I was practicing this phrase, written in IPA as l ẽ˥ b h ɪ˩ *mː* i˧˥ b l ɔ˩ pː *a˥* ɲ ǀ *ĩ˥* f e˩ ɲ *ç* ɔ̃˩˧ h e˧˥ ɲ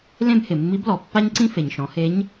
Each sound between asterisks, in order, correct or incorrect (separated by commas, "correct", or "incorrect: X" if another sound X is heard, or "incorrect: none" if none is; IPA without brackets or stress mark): correct, correct, correct, incorrect: ʃ